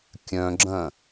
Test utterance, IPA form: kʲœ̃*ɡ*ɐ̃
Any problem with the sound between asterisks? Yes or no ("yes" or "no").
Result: yes